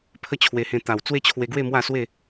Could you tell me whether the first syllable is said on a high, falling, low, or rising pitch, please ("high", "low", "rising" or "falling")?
high